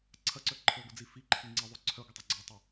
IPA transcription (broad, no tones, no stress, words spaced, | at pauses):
ǀʰɐǀœ ǃʰɤɡʷəd͡zi fiǃʰi ŋ͡ǀəðˤo ǀʰœɡʷətˤa ɡ͡ǀœtˤe